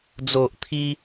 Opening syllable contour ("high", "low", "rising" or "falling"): low